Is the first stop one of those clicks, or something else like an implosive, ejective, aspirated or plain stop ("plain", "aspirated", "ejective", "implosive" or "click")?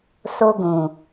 plain